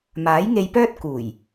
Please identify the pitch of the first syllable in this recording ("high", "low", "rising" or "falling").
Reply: rising